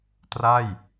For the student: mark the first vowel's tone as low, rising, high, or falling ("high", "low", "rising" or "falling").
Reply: falling